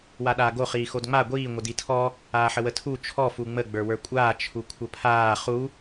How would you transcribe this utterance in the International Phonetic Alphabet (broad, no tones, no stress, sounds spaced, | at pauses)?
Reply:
w a ɗ aː ɡ o χ iː x o d ŋ͡m a ɡʷ iː ŋʷ ɘ d i tʰ ɔ | aː ħ ə w ə tʰ u t͡ʃʰ ɔ f u ŋ͡m ə ɡ͡b ə˞ w ə˞ kʷʼ aː t͡ʃʰ u kʷʰ ə pʰ aː χ u